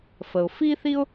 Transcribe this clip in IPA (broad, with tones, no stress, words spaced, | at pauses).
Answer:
fə˩ʊ̯fi˥θi˥ʊ̯